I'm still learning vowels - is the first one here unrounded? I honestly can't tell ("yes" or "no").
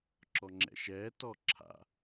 no